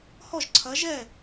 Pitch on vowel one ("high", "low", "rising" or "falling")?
falling